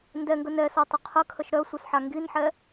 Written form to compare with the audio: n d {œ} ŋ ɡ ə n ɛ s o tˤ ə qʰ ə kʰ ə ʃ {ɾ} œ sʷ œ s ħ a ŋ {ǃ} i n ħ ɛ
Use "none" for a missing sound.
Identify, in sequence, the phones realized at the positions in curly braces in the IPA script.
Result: ɛ, ɾ, ɡ

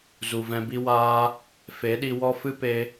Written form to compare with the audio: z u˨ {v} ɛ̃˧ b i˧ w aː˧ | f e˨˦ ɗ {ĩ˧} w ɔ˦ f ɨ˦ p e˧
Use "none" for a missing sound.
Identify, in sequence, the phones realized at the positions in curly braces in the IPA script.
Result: v, i˧

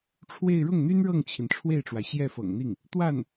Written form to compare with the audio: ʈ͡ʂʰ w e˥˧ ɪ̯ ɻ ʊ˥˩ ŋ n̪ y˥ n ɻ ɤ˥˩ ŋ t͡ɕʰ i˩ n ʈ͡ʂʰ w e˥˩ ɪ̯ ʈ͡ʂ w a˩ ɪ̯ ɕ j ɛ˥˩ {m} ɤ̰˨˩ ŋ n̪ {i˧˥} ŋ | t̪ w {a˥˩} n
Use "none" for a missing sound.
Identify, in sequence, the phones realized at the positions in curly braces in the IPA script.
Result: f, i˥˩, a˥˩

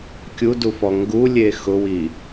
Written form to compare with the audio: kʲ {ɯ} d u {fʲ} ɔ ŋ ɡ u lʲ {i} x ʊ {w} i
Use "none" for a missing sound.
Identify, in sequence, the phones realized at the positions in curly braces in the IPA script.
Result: u, f, e, w

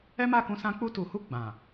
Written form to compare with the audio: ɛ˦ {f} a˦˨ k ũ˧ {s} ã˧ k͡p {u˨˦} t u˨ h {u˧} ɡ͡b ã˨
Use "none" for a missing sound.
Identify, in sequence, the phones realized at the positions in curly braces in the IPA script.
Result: m, s, u˧, u˧

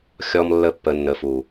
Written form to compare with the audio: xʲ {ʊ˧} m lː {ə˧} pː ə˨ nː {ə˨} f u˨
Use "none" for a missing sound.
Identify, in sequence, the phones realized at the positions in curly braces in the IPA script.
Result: ɔ˧, ə˧, ə˨

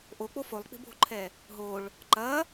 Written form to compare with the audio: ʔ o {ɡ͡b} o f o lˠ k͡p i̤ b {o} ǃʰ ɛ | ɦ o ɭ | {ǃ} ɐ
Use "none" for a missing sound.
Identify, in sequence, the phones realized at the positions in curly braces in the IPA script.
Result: k͡p, o̤, ǃ

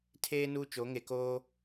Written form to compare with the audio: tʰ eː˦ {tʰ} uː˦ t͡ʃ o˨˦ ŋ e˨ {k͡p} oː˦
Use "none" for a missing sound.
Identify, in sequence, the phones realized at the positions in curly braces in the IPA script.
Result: n, k

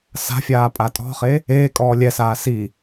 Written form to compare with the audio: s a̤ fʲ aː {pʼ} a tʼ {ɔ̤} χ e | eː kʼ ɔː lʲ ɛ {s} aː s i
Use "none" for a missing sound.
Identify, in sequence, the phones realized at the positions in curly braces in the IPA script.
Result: pʼ, ɔ̤, s

